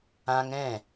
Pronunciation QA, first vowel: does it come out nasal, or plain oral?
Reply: nasal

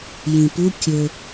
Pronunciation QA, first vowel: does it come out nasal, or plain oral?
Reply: nasal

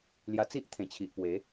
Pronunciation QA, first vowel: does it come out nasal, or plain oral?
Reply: oral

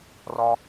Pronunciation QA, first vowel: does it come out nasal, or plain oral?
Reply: oral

